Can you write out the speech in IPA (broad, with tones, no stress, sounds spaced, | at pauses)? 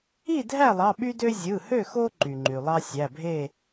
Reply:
i˥˨ dʱ æ˥˨ lˠ ɑ˩˧˩ ɓ y˦ d ø˦ zʲ ɯ˩˧˩ h ø˥˨ x o˦ ǃ y˩ ŋ͡ǃ y˩ lˠ ɑ˦ sʲ æ˩˧˩ bʱ e˥˨